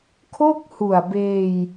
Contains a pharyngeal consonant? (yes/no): no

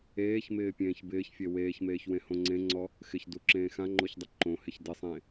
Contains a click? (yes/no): yes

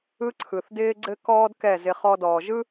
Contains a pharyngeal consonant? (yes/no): no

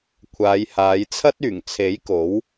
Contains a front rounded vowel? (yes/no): yes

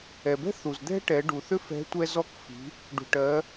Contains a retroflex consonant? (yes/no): yes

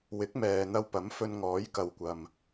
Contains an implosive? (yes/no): no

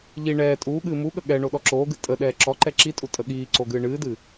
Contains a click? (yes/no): yes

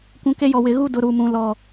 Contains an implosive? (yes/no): no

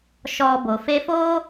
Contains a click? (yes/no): no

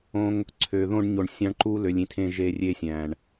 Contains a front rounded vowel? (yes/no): yes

